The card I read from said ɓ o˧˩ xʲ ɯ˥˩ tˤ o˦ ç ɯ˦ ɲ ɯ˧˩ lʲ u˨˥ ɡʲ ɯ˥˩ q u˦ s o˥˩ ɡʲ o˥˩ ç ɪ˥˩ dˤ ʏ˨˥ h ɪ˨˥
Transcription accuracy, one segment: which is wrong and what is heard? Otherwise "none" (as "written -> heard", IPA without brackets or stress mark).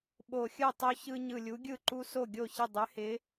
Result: q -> ǃ